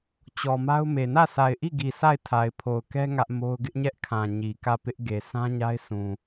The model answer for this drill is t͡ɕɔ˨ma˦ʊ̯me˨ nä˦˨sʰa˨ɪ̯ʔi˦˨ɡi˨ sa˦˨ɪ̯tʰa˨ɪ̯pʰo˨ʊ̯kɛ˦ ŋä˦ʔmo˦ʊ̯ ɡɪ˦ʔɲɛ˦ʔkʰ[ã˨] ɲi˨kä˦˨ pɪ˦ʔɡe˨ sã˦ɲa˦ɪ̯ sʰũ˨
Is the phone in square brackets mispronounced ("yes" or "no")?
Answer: no